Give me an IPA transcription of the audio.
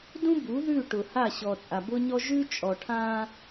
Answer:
d ũ˦ b u˨˦ ð ʉ˦˨ ʈ ʊ˨ h a˦˨ ɕ ɔ˨ t͡sʼ a˨ b ʊ˦ ɲ ɔ˦ ʒ ʉ˦ t͡ʃʼ ɔ˨ ʈʰ ã˦

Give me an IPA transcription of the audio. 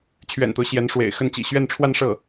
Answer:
t͡ɕʰ ɥ ɛ̰˨˩ n t̪ o˦ ʊ̯ ɕ j ɛ˧˥ n ʂ w ḛ˨˩ ɪ̯ x ə˥˩ n t͡ɕ ḭ˨˩ ɕ ɥ ɛ˥˧ n ʈ͡ʂʰ w a˥˧ n ʂ ɤ˥˩

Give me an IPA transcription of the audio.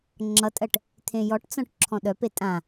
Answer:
ŋ͡ǁ ʌ tʼ ɜ ʈ | t̪ʰ ẽ j ɔ ʈ t͡s ɔ̃ ʈ ǁʰ ɔ̃ ɗ œ p e tʼ ã

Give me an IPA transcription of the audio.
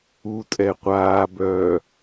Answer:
u tʼ ɛ qʷ aː b œː

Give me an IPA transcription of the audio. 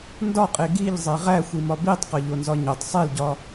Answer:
n d ɒ qʼ e ɡ i ʎ zˤ e ʁ æ xʷ i m ɒ b i tˤ q ɒ ʎ o n z ɒ ɲ o tˤ sˤ e l ɟ ɒ

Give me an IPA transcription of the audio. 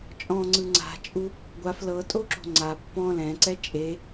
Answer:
t͡ʃʼ ɔ̃ ŋ͡ǀ ɯ ŋ͡ǀ a̤ t͡ʃʼ u | ɡʷ a f l ɤ tʼ o ǁ o̤ ŋ͡ǀ a pː ɔ̃ l ɛ̃ ǀ ɛ t͡ʃʼ e

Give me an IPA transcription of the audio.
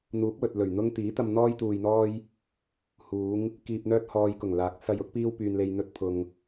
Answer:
n̪ uː˨˥ p̚ w ɵ˨ t̚ l ɵ˨˩ ɥ n̪ ʊ˥ ŋ t̪ iː˨˥ t̪ ɐ˧ m n̪ ɔː˥ j t̪ uː˧ j n̪ ɔː˥ j | h uː˨˧ ŋ | k iː˨ p̚ n̪ œː˧ t̚ h ɔː˨ j k ʊ˨˩ ŋ l aː˨˥ k̚ s ɐ˧ j ʊ˥ k̚ p iː˥ w p yː˧ n l e˧ j n̪ ɵ˥ t̚ pʰ ʊ˧ ŋ

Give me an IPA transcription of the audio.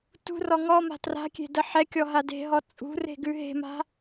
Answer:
t ṳ r ɔ ŋ ɔ m a̤ t r a̤ kʲ e̤ d ə ħ ɛ kʲ ɔ ɦ a d e̤ ɦ ɔ t͡sʼ ṳ r e̤ ɡ ʉ ɦ e̤ m a̤

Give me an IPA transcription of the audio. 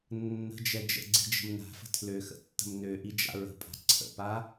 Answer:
nː ə̤ d͡ʒ ɛ d͡ʒ ə̰ ɡ͡ǀ i̤ d͡ʒ ə̤ m n a̤ f ə̤ tʰ l ø x ə̰ tː ə̤ m n ø ʔ i d͡ʒ a̰ ɹ ə̤ pʼ a̤ ǀʰ ə̰ p a

